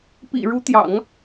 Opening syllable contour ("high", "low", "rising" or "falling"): low